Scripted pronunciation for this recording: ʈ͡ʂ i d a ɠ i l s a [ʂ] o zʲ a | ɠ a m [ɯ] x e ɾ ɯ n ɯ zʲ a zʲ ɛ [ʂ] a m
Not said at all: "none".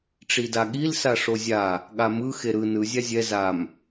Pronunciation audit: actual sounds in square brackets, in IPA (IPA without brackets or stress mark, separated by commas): ʂ, ɯ, z